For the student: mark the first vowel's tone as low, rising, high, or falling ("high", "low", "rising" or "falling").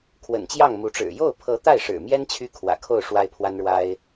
low